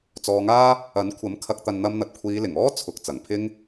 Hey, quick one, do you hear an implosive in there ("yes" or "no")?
no